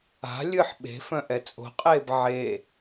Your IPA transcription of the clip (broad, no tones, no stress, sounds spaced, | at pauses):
a̤ lʲ ɨ ħ ɓ e̤ f œ̃ ʔ ɛ t͡sʼ o̤ qʼ eː b ʕ e